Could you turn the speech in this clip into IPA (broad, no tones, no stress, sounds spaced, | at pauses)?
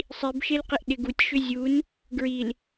sˤ i b ʃ e l q ɪ ʔ ɗ ɪ ɡ u tʲ ʃ ʏ zʲ u n | ɡ ɹ i l